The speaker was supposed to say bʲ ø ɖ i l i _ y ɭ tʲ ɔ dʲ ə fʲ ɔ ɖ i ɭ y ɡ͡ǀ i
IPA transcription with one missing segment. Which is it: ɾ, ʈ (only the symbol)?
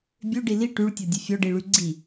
ʈ